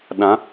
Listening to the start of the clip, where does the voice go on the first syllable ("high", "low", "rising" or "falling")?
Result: rising